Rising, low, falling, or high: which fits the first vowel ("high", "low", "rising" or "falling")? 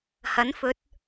rising